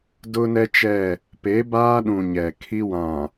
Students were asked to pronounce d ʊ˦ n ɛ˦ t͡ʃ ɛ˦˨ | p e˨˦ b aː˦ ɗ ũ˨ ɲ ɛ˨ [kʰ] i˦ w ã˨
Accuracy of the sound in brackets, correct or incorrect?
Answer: correct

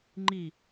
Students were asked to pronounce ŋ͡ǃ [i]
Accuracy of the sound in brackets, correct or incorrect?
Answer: correct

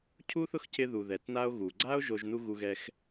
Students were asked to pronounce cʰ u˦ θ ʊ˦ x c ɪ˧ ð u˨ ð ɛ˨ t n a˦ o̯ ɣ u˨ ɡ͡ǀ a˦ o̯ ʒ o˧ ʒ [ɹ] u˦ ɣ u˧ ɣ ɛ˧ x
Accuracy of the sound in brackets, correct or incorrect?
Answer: incorrect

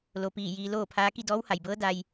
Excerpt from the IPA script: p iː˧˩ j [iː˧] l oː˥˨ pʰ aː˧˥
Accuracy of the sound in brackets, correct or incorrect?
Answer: correct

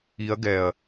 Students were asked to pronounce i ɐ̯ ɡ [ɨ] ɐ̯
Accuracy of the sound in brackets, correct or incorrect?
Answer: incorrect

